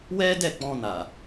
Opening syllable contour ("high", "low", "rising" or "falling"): high